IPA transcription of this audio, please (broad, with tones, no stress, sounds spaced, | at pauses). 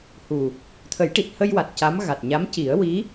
h u˨˩ | t̪ʰ ə˨˩˦ j ʈ i˨˩ t̚ h ə˧ j w a˨˩ t̚ c a˧˥ m ɣ a˨˩ t̚ ɲ a˧˥ m c i˨˩˦ ə̯ w i˧˥